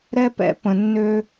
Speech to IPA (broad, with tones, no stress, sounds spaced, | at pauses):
ɾ ɛ˦ p ɛ̰˦ p ə̃˨ nː ø˦